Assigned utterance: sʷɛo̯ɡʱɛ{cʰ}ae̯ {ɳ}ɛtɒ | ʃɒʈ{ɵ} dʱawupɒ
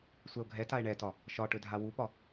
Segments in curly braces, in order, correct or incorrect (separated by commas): incorrect, correct, correct